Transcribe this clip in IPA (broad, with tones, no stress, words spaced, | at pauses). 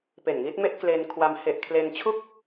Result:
pe˨˩nŋi˦˥t̚me˥˩ʔ kle˧nkʰwa˧m he˨˩ʔ kʰle˧nt͡ɕʰu˥˩k̚